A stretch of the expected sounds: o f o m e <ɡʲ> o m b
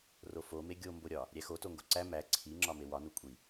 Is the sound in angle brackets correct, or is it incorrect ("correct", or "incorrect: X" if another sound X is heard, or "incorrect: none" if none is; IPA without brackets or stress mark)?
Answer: correct